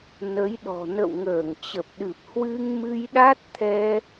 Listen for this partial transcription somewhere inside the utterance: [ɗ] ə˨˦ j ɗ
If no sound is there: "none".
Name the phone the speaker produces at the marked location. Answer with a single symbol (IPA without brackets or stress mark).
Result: n